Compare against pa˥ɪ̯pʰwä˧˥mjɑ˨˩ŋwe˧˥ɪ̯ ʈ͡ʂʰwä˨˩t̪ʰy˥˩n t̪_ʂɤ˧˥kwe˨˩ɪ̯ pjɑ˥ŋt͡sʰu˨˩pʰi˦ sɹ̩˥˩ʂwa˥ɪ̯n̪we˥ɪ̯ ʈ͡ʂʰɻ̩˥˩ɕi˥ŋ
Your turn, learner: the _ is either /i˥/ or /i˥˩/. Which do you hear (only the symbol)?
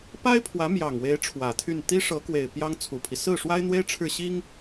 i˥